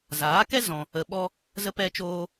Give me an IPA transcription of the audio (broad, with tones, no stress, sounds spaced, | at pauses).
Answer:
z aː˨˦ k ɛ˦ z ɔ̃˧ | ə˧ ɓ ɔ˦ | z ə˦ p ɛ˦ t͡ʃ oː˦